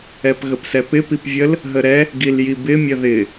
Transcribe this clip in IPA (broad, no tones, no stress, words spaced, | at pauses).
ɛpɣəpsɛpɪ pipvʲəl | ɦəɾɛ | ɡiljibɪ mʲəðɪ